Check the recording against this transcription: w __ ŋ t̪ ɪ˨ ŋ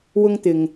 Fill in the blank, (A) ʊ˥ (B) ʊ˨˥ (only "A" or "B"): A